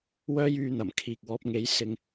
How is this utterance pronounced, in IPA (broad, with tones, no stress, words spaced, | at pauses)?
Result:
wœː˥jyː˧n̪ɐ˨˩m kʰiː˨k̚wɔː˨˥p̚ŋe˨˥j sɪ˧ŋ